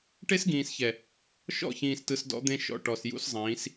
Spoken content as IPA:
ʈ e˦ s ɡ ĩː˨ s ç ɛ˨ | ʃ ɔ̰˦˨ ç ĩː˨ s t ɯ˨ s d ɔ̰˦ d̪ ẽ˦ ʃ ɔ̰˨ ʈ ɔ˨ s j ṵ˦ s zˤ ĩː˨˦ s

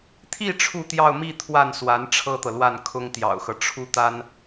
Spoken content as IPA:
t̪ʰ i˥˧ ʈ͡ʂʰ u˥˧ t̪ j ɑ˥˧ ʊ̯ m i˥˧ t̪ʰ w a˥˩ n s w a˧˥ n ʈ͡ʂʰ ɤ˥ t̪ ɤ˨ l w a˥˩ n kʰ ʊ˥ ŋ t̪ j ɑ̰˨˩ ʊ̯ x ɤ˦ ʈ͡ʂʰ u˥˩ t̪ a˥ n

